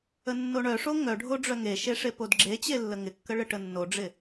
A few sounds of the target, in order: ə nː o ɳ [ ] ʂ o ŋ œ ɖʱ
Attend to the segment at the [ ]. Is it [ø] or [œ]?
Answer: œ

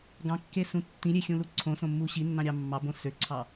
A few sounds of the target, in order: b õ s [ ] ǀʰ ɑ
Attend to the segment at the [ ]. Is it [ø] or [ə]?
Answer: ø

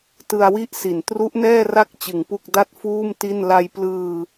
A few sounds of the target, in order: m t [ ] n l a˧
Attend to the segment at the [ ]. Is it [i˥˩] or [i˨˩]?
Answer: i˥˩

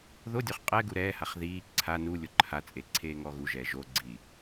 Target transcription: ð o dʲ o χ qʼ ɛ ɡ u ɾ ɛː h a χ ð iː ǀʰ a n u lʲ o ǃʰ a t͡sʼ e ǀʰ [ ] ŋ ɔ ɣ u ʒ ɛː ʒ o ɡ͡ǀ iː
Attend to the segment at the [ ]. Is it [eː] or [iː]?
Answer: eː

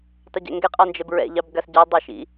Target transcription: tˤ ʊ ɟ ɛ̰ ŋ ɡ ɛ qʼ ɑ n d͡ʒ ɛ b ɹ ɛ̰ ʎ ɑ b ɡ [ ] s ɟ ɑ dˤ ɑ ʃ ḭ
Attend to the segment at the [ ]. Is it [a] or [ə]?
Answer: a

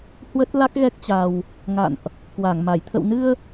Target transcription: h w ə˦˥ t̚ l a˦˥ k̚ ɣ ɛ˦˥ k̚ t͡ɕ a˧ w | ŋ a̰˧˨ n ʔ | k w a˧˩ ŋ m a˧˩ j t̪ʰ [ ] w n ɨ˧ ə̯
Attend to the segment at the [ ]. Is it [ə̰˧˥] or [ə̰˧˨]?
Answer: ə̰˧˨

